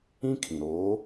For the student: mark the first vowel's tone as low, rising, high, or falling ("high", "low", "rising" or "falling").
high